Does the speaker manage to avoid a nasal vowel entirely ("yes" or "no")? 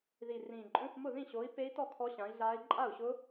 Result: no